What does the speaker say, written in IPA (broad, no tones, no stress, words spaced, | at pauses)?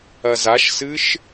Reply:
ɐzaʃsɨʃ